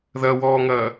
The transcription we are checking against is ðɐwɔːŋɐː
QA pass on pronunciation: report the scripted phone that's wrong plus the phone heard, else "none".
none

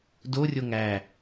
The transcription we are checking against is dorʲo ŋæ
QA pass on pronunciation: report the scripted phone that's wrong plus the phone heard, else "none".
none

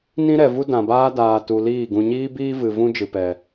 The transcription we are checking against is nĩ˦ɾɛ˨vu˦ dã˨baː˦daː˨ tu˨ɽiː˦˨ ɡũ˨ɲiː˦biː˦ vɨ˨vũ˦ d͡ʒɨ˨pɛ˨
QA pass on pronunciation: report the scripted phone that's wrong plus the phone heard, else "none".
ɽ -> l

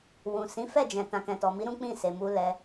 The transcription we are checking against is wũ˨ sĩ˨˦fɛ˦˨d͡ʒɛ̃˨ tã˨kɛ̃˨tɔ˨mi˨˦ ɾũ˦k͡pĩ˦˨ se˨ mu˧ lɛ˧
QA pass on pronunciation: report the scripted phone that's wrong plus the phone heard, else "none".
none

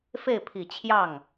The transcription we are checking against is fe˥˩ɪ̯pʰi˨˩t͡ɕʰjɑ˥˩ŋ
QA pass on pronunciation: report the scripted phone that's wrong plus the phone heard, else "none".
none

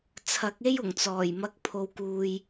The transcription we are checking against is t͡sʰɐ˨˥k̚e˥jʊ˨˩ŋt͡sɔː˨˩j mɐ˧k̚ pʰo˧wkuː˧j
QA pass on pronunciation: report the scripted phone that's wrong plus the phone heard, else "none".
none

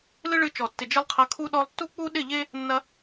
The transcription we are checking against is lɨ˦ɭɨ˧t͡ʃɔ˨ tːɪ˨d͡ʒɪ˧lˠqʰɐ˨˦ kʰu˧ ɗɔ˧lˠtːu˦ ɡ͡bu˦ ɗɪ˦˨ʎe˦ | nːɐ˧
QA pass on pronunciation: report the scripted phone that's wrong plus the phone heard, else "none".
ɡ͡b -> k͡p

